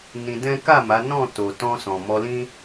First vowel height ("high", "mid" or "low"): high